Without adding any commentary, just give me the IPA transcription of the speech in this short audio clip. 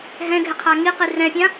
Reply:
ɦ ɛ̃ ɡʱ ɪ qʰ a ŋ i q i r ɛ̃ pʲ ã

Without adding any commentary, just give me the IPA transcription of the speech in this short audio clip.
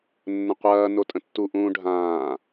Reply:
nː ə̃ qʷ ɐː n o tʼ ə̃ tː u ʔ ũː ɖʱ ãː

